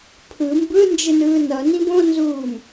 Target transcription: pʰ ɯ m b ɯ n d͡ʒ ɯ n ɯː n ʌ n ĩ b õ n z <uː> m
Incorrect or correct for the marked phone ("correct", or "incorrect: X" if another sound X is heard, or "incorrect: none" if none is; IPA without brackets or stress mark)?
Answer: correct